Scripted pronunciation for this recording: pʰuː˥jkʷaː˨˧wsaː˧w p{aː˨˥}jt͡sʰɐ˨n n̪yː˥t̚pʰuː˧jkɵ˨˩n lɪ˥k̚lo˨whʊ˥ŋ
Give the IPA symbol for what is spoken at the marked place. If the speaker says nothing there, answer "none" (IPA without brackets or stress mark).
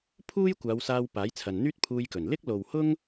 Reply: aː˨˥